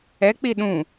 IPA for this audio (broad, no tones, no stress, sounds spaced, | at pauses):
ɛ k͡p i ɗ ũ